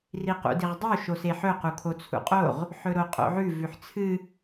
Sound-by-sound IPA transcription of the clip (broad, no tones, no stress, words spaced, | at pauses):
riqṵdiʁdˤu ʃoseħɵ qukʰot͡sʰṵqʼoʁ | ħɵɾoqʼo̰ʕʉ vʉħt͡sʰɨ